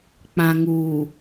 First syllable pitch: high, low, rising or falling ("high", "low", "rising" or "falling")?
low